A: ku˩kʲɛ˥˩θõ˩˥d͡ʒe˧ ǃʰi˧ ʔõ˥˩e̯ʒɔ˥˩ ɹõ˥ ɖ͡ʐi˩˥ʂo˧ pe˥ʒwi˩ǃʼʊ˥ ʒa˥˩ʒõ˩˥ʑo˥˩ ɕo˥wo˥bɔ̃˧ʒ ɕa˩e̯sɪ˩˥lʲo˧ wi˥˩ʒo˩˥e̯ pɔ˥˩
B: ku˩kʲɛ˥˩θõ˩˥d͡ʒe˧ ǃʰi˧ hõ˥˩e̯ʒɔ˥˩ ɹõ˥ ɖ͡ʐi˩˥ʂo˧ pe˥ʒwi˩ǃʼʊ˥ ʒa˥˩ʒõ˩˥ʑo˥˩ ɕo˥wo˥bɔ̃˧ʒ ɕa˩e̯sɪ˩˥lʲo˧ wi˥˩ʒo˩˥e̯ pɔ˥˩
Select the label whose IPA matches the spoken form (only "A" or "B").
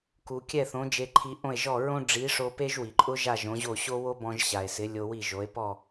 A